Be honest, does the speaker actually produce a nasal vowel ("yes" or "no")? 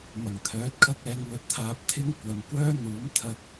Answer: no